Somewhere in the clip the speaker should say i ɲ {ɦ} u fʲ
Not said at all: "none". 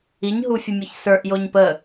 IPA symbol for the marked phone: ɦ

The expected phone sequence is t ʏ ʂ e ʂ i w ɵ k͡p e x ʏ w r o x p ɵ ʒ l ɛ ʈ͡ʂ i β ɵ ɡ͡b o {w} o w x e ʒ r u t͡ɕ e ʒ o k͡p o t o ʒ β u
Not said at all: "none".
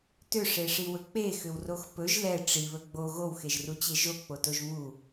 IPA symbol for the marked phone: ɣ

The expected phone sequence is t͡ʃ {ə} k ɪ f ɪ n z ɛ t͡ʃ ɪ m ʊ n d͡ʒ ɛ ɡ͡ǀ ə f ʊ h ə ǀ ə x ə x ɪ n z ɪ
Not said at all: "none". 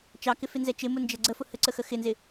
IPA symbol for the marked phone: ɑ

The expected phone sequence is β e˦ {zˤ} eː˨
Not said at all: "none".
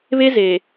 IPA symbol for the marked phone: z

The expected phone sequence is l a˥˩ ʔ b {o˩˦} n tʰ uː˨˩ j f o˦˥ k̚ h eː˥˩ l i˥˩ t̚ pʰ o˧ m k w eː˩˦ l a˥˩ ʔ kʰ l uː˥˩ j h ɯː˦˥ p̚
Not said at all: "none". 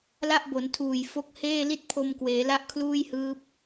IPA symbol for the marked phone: o˩˦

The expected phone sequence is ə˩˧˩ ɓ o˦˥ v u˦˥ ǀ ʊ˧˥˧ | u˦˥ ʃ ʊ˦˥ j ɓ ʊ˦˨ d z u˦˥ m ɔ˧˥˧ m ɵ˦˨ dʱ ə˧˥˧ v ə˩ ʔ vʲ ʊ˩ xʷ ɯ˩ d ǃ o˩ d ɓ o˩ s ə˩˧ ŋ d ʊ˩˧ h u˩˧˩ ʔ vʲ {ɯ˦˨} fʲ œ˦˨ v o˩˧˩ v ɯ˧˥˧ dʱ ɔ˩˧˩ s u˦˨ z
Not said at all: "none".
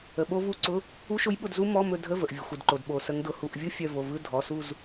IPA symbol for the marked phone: ɯ˦˥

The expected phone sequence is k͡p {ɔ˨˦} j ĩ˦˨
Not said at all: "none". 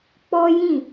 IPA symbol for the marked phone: ɔ˦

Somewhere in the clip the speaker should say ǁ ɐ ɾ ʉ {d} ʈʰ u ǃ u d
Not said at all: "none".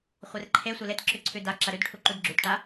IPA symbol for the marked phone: d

